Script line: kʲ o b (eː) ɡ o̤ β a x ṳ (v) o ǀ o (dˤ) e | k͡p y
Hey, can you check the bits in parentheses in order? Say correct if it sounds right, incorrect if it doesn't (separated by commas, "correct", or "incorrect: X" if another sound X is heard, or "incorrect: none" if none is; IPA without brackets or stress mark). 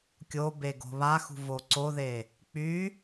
incorrect: e, correct, incorrect: ð